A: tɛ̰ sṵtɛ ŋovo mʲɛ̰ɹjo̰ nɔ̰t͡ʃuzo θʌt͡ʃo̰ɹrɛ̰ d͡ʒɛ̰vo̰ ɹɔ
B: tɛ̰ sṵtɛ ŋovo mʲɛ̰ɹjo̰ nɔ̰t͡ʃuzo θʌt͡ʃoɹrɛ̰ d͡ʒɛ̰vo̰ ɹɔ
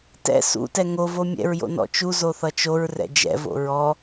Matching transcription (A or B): B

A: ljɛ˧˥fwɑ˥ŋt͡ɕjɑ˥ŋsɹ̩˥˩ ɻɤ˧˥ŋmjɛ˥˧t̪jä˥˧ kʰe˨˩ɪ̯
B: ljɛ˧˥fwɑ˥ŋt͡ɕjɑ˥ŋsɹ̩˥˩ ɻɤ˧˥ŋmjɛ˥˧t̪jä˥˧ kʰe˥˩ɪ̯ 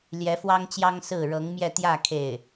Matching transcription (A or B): B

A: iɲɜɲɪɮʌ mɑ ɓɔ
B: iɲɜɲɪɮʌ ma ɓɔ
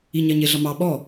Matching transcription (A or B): A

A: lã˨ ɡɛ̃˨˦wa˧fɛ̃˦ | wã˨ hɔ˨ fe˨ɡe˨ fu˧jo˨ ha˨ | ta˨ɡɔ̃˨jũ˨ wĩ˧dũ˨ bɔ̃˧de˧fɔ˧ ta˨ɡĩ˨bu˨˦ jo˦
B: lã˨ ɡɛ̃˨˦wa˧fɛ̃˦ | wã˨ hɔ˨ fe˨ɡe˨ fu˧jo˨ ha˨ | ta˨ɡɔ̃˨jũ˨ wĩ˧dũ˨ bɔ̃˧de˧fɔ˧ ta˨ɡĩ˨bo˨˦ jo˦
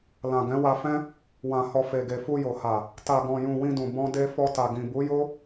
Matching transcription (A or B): A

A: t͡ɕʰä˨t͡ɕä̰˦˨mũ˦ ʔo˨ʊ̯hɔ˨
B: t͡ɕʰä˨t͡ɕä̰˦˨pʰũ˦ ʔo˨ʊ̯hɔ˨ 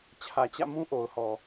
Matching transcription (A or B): A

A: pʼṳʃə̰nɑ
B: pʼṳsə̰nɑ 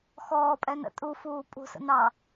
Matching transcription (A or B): B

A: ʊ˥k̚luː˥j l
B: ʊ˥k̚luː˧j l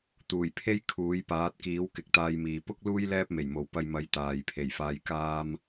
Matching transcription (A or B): A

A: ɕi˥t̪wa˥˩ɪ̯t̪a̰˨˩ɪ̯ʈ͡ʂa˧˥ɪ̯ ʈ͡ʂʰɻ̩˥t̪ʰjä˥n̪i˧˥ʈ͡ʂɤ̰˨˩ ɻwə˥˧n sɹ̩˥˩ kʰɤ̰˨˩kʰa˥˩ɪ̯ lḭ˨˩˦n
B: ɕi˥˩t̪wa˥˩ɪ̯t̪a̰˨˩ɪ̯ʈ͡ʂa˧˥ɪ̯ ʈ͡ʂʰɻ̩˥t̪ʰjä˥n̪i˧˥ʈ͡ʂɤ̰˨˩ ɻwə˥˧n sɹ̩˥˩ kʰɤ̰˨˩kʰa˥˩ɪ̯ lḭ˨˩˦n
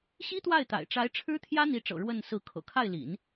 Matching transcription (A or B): A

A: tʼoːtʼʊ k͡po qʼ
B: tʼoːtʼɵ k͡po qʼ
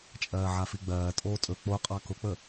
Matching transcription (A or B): B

